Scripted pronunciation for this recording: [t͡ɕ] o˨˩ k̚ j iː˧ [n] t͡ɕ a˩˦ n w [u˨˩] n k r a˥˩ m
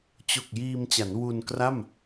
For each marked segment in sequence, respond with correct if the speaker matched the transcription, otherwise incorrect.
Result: correct, incorrect, incorrect

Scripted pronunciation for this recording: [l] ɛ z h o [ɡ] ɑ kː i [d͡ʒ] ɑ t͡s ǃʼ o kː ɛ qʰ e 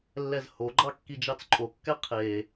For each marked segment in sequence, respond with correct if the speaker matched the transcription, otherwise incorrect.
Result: incorrect, incorrect, correct

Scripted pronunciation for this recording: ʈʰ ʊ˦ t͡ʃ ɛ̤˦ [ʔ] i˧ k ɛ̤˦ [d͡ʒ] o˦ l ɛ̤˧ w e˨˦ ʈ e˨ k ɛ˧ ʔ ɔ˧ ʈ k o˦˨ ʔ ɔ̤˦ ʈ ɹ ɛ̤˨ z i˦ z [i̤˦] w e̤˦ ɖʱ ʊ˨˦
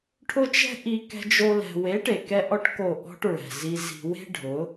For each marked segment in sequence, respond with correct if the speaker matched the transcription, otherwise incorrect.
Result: correct, correct, correct

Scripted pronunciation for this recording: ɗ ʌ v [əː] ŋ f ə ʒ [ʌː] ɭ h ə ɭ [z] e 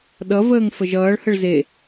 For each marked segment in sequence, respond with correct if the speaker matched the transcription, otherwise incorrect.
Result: correct, correct, correct

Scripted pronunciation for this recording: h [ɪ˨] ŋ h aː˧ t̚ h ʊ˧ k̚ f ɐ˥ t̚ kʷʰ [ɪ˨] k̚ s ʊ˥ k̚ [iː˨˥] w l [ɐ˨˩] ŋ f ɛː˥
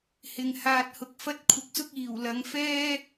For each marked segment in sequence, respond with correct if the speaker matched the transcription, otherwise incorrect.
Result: correct, correct, incorrect, incorrect

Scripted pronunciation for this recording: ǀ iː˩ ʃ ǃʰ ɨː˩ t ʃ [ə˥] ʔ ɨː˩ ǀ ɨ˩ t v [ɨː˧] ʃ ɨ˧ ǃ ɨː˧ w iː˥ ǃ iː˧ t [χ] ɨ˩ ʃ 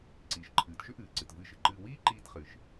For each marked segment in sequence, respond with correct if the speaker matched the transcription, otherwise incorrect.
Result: incorrect, correct, correct

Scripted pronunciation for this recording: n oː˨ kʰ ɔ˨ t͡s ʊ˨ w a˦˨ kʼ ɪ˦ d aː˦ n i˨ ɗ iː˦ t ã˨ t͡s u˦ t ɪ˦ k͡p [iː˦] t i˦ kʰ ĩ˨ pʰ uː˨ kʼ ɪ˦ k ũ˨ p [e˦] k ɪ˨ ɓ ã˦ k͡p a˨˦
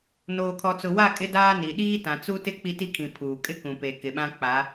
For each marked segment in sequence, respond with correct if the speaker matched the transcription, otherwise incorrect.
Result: incorrect, incorrect

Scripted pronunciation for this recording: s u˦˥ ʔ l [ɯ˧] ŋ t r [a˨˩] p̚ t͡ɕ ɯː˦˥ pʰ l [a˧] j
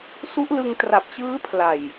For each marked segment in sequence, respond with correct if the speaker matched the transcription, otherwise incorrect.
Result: correct, correct, incorrect

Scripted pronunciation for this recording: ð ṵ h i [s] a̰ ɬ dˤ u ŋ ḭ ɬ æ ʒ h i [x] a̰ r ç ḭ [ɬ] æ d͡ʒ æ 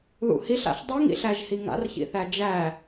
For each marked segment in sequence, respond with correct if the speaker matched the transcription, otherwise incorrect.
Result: incorrect, incorrect, incorrect

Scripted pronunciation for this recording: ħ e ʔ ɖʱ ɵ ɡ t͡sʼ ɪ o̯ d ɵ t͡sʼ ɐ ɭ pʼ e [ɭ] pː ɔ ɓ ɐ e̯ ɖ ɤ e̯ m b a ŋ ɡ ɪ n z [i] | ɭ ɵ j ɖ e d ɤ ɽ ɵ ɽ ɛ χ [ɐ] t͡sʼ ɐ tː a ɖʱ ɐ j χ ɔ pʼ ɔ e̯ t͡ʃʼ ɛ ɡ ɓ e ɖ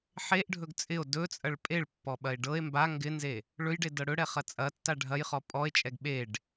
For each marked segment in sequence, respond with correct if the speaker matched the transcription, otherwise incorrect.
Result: correct, incorrect, correct

